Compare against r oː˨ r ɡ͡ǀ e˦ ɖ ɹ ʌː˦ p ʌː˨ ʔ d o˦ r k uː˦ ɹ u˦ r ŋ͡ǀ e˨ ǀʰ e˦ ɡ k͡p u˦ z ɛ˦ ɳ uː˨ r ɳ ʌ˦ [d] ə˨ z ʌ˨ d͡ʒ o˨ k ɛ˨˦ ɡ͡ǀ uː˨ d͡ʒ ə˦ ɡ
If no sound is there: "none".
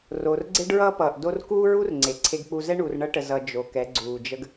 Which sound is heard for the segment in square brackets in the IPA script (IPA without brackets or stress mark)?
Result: ʈ